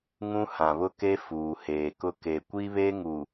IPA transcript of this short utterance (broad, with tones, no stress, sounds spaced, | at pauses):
ŋ ũ˦ h ã˨ β ʊ˦ k e˦ f uː˨ h eː˨ k ʊ˦ k e˨ kʷ i˦ β e˦ ŋ u˨